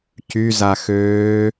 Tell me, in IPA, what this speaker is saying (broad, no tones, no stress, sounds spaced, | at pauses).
c y z a x øː